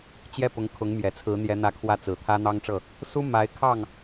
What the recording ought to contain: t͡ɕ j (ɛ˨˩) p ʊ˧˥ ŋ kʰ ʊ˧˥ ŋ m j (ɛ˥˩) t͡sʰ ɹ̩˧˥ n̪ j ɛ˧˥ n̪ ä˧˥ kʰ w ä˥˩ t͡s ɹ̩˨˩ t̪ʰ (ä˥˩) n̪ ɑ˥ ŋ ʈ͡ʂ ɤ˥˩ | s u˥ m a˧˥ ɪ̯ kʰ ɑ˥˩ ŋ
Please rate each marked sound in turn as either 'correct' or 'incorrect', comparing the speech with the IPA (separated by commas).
incorrect, incorrect, incorrect